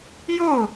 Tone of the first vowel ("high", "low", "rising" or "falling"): falling